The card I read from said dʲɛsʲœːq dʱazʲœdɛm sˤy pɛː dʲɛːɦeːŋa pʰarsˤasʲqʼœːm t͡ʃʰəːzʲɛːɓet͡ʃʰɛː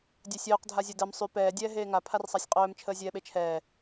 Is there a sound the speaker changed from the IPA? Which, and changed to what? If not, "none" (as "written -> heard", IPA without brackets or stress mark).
none